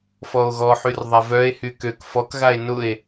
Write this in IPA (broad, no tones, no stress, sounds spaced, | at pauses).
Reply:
f ɔ o̯ ɣ ɔ ħ y r ðˤ a v œ e̯ h y k ø k f ɔ k ɣ a e̯ n ʊ e̯